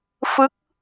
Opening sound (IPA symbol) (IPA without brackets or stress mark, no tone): f